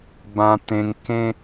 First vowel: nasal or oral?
nasal